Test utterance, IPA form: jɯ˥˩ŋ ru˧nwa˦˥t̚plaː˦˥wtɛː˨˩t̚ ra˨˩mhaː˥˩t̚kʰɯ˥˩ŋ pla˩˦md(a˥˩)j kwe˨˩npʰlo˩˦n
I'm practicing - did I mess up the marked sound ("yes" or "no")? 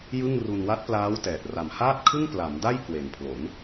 no